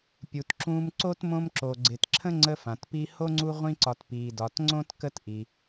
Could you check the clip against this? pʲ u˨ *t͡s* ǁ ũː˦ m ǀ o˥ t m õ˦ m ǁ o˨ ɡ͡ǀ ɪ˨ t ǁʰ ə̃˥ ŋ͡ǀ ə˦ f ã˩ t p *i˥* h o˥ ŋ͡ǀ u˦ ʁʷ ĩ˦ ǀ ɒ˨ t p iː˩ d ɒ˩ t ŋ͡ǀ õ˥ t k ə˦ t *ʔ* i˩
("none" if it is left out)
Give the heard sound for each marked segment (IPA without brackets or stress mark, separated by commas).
t, i˦, ʔ